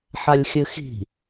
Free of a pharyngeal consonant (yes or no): no